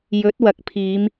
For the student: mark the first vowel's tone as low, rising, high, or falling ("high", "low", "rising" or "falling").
rising